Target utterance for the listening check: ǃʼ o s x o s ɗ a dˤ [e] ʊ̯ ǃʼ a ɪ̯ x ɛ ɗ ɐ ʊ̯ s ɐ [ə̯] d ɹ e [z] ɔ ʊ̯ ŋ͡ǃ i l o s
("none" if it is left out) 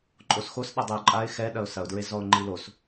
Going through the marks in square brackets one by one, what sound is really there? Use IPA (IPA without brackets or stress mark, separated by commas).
ɘ, ʊ̯, z